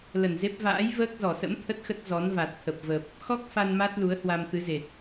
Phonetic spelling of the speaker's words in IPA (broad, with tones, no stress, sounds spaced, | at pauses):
l ə˧˩ n z e˦˥ p̚ v a̰ː˧˥ j v əː˦˥ k̚ z ɔ˧˩ s ə̰˧˥ m t̪ʰ ə˦˥ t̚ x ə˦˥ t̚ z ɔ˨˦ n v a˨˩ t̚ t̪ʰ ə˨˩ p̚ v ə˨˩ p̚ | x ɔ˦˥ k̚ f a˧ n m a˦˥ t̚ l u˨˦ ə̯ h w a˧ m t̪ ɨ˨˦ z e˨˩ t̚